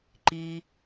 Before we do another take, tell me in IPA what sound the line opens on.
ǃ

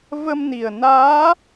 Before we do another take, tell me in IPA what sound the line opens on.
v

